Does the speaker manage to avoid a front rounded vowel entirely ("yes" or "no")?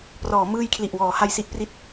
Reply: yes